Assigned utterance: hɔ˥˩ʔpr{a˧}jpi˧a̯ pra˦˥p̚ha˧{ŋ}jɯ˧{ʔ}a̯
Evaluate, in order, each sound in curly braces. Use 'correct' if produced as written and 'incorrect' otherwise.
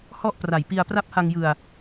incorrect: a˨˩, correct, incorrect: none

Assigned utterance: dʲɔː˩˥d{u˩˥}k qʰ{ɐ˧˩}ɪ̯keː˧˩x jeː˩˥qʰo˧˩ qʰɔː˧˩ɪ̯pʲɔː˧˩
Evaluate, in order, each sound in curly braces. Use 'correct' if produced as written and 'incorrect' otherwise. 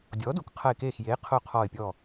correct, correct

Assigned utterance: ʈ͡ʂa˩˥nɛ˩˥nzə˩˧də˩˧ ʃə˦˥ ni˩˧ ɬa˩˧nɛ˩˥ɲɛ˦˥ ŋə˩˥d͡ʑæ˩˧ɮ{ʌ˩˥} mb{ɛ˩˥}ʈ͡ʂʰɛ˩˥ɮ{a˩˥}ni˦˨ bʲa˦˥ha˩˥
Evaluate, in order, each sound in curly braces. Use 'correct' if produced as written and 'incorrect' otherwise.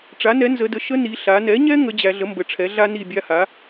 incorrect: ə˩˥, incorrect: ə˩˥, incorrect: a˦˥

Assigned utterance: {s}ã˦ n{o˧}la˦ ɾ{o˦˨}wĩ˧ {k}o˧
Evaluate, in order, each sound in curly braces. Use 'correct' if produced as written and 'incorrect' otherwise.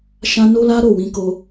incorrect: ʃ, incorrect: o˦, correct, correct

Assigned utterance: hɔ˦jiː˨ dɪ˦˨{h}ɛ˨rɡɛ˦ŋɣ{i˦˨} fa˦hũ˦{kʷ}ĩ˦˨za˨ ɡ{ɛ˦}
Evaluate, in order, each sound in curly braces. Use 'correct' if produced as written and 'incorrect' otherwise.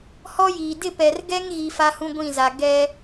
incorrect: p, incorrect: i˨, incorrect: ɡʷ, correct

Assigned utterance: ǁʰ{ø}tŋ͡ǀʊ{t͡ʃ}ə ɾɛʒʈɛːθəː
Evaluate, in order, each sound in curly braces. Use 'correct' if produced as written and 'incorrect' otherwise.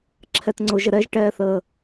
incorrect: ɛ, incorrect: ʒ

